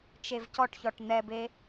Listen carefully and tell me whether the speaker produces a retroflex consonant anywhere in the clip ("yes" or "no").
yes